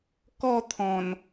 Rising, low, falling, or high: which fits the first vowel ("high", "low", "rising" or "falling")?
falling